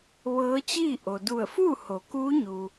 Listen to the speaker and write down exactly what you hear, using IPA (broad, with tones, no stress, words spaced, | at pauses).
ʋɤː˧˥t͡ɕiː˥˨ ʔo˩du˧˩ə̯fuː˥˨ ho˩˧kuː˧˥ ɲu˩